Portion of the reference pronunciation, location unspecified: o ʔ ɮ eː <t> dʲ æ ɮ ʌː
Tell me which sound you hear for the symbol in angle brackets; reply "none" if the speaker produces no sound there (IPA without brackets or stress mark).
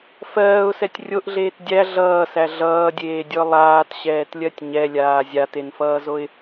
t